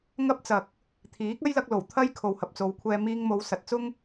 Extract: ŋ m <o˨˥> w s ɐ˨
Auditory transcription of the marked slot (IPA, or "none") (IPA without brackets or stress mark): o˨˧